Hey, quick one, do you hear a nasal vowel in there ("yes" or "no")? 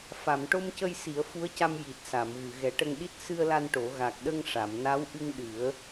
no